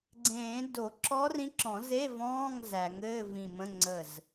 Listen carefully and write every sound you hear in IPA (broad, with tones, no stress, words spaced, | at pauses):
ɡ͡ǀẽː˨˩˦ do˨˩˦ǁɔ˧˥ rĩ˧˥ǁɔ̃˨˩˦ze˧˥˧ vɔ̃ː˧˥˧ŋ zæ˨˩˦ŋɘː˧˥˧vĩ˧˩mə̃˧˥˧ ŋ͡ǀə˧˩z